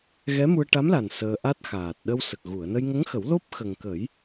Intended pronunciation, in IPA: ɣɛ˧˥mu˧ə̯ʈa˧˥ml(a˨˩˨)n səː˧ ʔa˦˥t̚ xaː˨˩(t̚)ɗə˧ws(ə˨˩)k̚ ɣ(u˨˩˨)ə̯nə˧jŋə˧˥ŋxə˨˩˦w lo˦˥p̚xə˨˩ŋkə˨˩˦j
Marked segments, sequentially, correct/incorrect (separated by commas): incorrect, correct, correct, correct